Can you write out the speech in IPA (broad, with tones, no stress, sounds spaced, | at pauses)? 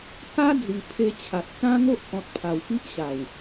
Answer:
k a˦ d͡z i˨˩ pʰ e˧ t͡ɕʰ a˨ t̚ t͡s ã˦ ŋ o˦ ʔ k ɔ̃˨ t̚ pʰ a˨˩ w p i˦ ʔ ɕ a˨˩ w